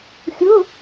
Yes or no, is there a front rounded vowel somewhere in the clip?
no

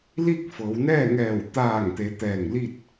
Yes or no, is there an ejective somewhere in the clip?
no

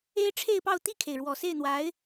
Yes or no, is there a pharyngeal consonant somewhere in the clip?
no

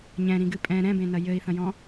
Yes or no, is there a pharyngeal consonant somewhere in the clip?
no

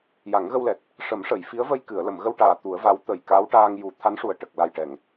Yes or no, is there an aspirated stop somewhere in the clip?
yes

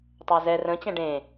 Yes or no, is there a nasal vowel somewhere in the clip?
yes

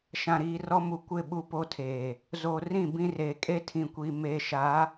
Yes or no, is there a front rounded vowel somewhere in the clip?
no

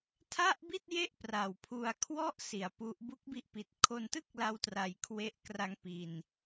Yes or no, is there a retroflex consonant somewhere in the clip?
no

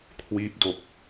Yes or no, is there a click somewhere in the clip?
no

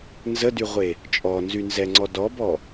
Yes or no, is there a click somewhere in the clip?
yes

